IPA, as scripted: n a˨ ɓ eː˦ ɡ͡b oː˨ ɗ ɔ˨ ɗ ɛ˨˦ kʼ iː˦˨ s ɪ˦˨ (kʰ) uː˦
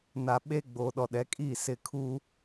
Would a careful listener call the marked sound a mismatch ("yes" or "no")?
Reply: no